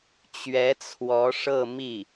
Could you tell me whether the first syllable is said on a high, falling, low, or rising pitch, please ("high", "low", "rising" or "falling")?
rising